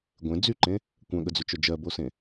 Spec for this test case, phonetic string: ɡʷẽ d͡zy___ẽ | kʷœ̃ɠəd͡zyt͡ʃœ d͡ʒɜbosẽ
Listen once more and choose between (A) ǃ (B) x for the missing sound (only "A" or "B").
A